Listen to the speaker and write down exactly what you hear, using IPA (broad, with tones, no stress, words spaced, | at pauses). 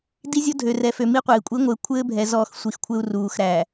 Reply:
di˦ zʲɔ˦dʱø˨rɛ˨fø˨ mi˦qʷɘː˨i̯ kʷʼi˨˦ŋʷɘː˨ kʷʰɘː˦bʱɛ˨ zɔ˦˨xsʷi˨xkʷʰɘ˦u̯ ruː˨xɾæ˨